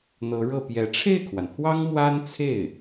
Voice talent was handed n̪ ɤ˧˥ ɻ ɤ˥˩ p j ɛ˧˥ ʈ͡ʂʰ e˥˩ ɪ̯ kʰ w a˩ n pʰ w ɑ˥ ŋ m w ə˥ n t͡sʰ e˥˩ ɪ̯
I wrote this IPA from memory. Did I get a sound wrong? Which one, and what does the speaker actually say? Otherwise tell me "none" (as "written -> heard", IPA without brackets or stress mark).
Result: ə˥ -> a˥